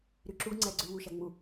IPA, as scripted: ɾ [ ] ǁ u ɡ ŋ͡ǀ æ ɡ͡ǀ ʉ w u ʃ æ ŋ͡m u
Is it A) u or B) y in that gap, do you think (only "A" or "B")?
B